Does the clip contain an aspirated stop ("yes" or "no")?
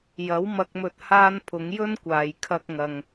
yes